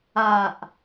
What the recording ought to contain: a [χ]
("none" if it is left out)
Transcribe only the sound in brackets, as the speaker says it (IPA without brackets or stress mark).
ʔ